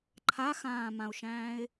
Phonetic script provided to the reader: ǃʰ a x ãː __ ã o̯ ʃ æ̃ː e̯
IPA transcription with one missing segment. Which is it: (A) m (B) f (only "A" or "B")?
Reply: A